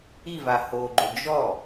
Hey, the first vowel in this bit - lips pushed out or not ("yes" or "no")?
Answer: no